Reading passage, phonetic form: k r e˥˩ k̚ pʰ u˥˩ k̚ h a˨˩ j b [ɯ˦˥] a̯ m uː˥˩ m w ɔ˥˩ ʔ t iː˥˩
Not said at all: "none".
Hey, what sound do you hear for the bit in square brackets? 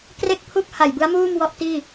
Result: ɯ˦˥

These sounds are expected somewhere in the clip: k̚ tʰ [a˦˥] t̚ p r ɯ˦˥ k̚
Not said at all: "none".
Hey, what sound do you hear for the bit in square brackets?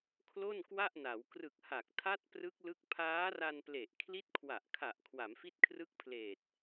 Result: a˦˥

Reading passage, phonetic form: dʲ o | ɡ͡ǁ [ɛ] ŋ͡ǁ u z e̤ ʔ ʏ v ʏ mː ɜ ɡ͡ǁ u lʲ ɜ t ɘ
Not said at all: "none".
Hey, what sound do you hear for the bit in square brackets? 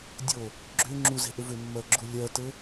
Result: ʏ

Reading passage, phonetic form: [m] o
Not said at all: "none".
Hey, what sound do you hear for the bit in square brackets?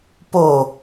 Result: p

